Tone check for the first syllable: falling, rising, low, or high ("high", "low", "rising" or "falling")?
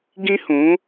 high